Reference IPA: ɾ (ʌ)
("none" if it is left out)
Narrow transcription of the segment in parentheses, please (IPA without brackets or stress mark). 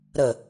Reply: ə